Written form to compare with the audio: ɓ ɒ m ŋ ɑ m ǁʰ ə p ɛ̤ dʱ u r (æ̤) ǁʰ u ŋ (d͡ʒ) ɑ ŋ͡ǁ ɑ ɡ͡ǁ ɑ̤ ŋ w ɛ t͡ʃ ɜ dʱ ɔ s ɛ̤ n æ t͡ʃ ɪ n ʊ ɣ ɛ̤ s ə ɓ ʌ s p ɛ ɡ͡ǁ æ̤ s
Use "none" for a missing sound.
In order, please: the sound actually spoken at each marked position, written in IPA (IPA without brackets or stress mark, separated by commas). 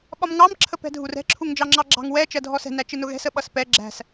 ɛ̤, d͡ʒ